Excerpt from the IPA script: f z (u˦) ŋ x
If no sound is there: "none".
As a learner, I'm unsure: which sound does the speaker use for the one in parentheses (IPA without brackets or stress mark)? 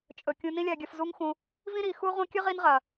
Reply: u˦